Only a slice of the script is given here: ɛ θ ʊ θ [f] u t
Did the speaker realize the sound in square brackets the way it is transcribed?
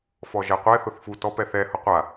yes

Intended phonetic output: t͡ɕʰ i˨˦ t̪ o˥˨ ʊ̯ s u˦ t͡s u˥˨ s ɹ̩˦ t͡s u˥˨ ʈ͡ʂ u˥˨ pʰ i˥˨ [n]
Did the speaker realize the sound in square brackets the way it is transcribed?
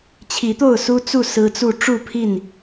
yes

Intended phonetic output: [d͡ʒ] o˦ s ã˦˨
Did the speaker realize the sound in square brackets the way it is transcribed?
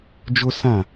yes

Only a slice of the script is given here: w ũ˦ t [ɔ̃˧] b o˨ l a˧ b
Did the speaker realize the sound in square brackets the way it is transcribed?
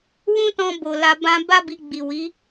yes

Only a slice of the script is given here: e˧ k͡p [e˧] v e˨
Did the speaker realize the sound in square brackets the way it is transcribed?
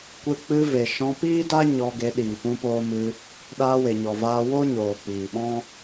no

